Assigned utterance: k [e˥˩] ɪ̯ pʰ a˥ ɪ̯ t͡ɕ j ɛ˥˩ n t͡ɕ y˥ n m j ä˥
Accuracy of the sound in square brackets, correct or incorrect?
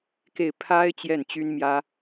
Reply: correct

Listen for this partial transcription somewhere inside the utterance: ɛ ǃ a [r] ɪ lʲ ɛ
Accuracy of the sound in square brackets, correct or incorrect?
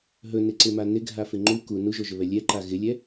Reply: incorrect: ɣ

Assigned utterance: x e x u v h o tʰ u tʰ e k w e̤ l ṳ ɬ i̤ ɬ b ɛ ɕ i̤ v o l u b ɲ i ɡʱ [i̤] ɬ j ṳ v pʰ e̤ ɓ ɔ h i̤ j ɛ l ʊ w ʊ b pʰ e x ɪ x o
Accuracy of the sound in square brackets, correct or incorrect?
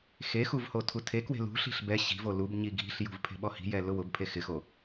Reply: correct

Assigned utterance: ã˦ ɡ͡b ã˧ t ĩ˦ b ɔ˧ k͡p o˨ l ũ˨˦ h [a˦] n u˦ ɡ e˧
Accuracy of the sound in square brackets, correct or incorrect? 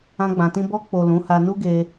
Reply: incorrect: a˧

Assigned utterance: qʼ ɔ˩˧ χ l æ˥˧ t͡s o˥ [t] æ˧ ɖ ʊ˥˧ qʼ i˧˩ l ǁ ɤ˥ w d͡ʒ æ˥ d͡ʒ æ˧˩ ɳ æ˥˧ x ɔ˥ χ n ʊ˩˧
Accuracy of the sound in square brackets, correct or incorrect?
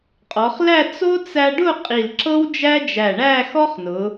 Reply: incorrect: t͡s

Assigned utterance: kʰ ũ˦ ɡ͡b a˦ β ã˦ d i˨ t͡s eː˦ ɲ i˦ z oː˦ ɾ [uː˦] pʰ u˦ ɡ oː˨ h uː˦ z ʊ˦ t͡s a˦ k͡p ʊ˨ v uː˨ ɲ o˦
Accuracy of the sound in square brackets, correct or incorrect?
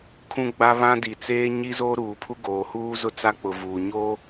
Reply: incorrect: uː˨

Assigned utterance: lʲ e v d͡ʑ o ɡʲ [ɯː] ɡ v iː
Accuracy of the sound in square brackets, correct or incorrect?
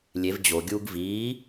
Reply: incorrect: uː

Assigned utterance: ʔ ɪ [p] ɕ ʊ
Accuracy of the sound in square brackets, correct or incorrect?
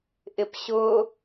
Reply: correct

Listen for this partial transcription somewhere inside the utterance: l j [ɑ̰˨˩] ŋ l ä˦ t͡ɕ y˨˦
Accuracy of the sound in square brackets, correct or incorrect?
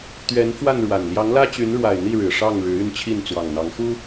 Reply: incorrect: ɑ˨˦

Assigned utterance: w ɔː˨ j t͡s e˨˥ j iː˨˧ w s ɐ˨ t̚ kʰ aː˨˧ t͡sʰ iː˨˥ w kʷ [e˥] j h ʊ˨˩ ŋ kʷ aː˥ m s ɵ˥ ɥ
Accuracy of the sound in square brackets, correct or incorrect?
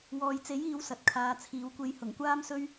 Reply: incorrect: e˧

